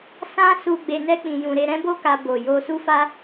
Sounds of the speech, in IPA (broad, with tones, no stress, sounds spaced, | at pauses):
s ã˦ s u˧ ɡ͡b e˧ n ɛ˦ k͡p ĩ˧ j ũ˧ ɾ e˧ ɾ ɛ̃˦ b o˦ k a˧ b o˨ j o˧ s u˦ f a˦